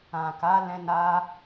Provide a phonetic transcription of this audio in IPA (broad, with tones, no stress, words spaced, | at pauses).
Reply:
ã˨ka˨˦ lɛ̃˧na˧